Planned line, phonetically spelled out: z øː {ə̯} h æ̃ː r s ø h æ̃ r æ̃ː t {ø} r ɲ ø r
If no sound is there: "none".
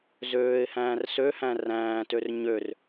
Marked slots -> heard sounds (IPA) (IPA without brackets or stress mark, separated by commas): ɪ̯, ø